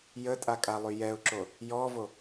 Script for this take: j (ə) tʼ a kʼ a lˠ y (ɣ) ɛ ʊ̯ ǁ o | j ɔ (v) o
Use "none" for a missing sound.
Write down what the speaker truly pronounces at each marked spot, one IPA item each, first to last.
ə, j, v

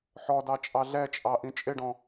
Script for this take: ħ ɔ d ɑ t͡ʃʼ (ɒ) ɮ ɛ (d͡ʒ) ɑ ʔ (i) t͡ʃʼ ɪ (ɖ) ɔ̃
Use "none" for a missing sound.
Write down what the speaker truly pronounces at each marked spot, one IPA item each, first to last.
ɑ, t͡ʃʼ, ĩ, ɖ

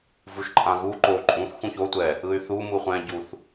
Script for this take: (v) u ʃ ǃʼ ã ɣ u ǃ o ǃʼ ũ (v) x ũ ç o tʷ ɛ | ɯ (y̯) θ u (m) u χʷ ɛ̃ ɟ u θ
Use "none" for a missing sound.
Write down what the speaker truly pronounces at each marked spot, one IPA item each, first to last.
v, θ, y̯, m

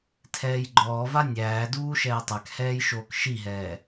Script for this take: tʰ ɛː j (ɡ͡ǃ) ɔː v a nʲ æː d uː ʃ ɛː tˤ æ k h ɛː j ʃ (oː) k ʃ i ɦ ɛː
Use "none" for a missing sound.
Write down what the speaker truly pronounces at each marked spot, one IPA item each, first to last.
ɡ͡ǃ, oː

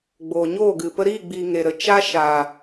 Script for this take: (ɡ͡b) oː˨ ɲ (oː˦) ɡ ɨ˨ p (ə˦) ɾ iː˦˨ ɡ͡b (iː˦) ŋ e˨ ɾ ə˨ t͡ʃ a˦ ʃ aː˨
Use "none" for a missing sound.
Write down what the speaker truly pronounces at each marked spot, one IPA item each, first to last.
ɡ͡b, oː˦˨, ə˧, iː˨

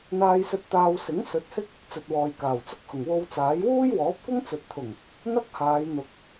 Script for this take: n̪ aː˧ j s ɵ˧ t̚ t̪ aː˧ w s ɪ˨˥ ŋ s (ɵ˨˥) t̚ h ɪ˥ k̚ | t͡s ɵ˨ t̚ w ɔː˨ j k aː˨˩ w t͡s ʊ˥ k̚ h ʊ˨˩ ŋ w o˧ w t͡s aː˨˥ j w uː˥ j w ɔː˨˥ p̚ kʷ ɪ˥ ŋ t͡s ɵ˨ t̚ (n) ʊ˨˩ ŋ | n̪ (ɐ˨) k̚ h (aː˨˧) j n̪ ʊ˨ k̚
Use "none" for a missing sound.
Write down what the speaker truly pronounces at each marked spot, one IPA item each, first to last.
ɵ˨˥, t̪ʰ, ɐ˥, aː˨˧

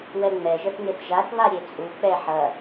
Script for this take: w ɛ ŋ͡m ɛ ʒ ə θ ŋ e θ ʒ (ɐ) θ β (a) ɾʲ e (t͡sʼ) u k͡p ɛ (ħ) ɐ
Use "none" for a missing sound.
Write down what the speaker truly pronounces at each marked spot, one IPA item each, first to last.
a, a, t͡sʼ, ħ

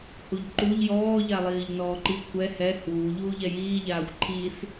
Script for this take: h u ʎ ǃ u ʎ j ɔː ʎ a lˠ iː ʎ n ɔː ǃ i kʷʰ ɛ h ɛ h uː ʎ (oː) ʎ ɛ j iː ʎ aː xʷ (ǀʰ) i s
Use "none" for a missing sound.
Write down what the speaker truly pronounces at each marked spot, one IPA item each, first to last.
uː, ǃʰ

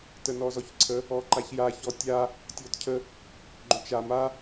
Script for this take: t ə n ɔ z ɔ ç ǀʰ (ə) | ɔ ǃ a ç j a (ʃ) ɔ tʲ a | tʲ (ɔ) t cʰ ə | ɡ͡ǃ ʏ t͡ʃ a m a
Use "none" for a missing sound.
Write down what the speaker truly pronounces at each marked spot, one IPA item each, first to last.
ə, ç, ɔ

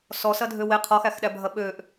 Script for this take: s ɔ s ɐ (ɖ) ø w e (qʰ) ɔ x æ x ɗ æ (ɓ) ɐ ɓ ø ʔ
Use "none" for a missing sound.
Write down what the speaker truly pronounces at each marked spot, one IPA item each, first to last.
dʱ, qʰ, bʱ

